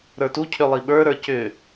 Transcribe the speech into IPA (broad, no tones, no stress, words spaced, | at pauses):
ɾə˞tu cʰʏlˠiɓə˞ ɾə˞cʏ